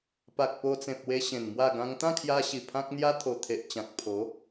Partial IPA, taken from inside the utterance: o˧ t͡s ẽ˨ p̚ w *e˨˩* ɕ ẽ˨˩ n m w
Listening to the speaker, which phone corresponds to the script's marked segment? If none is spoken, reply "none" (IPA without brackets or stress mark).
e˧